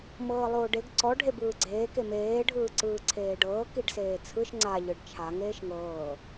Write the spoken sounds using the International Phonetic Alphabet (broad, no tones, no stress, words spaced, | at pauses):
mɤːlˠoːɖeɡ ǀɔ ɖʱebɯːɡ͡ǀeː kemeː ɖʱɯːǀɯːǀʰeːɖɤː kiɖseːt͡sʰɯʃ ŋ͡ǀa ʎɯɖt͡ʃʰa ŋeːʃŋɤː